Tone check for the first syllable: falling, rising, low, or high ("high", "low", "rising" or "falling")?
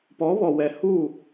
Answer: rising